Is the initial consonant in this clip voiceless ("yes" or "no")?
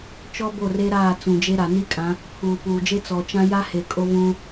yes